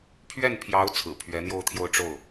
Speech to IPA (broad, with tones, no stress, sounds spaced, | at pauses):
pʰ ɥ ɛ˥˩ n pʰ j ɑ˧˥ ʊ̯ t͡sʰ ɹ̩˨˩ pʰ ɥ ɛ˧˥ n̪ j o˥˧ ʊ̯ t̪ʰ j o˥˧ ʊ̯ ʈ͡ʂ o˥˩ ʊ̯